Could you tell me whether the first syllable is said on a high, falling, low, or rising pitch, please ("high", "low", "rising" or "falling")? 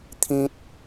high